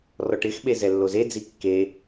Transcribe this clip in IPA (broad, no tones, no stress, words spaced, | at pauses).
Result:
rɔʈɪxɓe zɛlːozed͡zi kːe